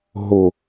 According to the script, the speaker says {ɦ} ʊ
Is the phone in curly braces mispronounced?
no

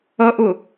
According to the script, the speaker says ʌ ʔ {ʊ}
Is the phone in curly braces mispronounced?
no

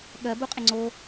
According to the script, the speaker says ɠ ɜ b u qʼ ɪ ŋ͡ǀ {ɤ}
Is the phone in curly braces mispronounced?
yes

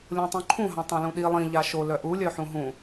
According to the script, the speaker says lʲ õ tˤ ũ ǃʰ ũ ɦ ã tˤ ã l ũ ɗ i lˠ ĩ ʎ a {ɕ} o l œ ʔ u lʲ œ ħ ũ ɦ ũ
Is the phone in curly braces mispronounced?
yes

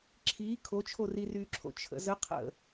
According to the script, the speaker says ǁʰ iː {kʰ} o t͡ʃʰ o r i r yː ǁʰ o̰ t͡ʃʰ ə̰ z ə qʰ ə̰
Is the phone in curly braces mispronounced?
no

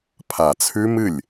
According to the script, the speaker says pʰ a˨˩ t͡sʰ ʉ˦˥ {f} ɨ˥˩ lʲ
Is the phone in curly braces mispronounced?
yes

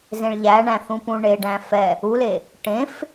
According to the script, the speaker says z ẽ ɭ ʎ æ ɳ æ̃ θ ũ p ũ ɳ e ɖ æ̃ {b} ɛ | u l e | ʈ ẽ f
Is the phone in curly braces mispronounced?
yes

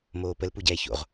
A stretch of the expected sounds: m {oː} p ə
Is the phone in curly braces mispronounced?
no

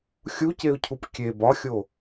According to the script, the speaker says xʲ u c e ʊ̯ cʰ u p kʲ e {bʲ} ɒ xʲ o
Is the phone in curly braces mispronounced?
yes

